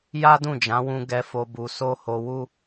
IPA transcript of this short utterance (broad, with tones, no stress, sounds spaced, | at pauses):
j a˦ d ũ˦˨ d͡ʒ ã˨˦ w ũ˧ ɡ ɛ˧ f o˧ b u˧ s o˦ h o˧ w u˦